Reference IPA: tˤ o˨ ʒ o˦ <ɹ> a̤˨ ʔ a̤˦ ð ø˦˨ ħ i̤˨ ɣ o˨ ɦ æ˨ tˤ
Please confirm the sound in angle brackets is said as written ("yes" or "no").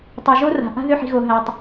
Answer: no